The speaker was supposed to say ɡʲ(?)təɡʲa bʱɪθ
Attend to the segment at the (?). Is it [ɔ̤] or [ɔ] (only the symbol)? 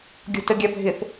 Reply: ɔ̤